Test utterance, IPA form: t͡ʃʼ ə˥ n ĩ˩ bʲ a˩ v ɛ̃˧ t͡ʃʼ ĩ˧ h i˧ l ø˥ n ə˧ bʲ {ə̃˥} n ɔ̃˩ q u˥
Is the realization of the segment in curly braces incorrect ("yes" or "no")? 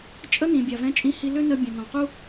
yes